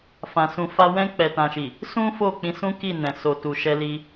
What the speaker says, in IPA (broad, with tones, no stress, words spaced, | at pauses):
fã˨sũ˨fa˧ wɛ̃˧k͡pɛ˨tã˨ʃi˨ | sũ˦fo˦˨k͡pĩ˨˦ sũ˦ki˦˨nɛ̃˨ so˨ tu˨ʃɛ˧li˧